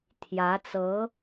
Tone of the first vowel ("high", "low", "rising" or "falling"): rising